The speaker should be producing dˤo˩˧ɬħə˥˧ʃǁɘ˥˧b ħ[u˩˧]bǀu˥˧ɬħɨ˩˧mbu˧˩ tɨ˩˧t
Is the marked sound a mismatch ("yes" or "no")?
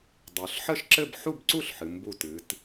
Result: yes